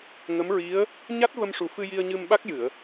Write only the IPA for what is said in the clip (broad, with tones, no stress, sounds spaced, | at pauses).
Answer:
ŋ ə˧˥ m ɹ i˧˥ ə̯ | ɲ a˦˥ t̚ v ə˧ m ʂ u˨˩ f ɨ˧ j i˧ ə̯ ɲ ɨ˧ m ɓ a˦˥ k̚ j ɨ˨˩˨ ə̯